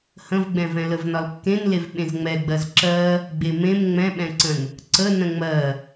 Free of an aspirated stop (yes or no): yes